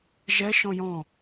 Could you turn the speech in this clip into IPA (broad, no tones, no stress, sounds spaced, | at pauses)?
ʒ ɛ ʃ ɔ̃ j ɔ̃